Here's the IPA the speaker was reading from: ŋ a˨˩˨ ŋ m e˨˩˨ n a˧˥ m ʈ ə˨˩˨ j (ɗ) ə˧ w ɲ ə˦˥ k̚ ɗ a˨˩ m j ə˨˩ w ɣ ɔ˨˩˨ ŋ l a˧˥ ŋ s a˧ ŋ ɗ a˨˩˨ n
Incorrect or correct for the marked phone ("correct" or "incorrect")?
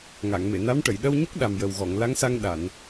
correct